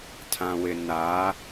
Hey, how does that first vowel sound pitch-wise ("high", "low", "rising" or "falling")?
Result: low